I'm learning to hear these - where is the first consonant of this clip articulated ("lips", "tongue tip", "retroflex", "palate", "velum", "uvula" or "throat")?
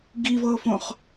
velum